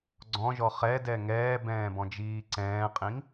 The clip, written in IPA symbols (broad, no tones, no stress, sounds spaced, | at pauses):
ɡ͡ǀ ɔ̃ ʒ ɔ χ ɛ d ɛ ŋ ɛː b ɛ̃ː b ɔ̃ d͡ʒ iː ǀ ɛ̃ː qʼ ĩ ŋ